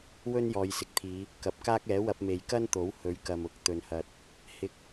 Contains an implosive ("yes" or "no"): no